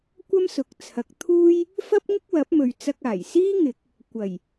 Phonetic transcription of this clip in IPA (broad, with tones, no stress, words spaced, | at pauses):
kʷɐ˥msʊ˨k̚t͡sʰɐ˨˥k̚ t̪ʰuː˥j | fɐ˥p̚ŋɪ˥k̚wɐ˨˥p̚mɵ˨ɥ t͡sɐ˧k̚aː˨˩jsiː˥ŋɪ˨˥k̚ | kʷɐ˨˩j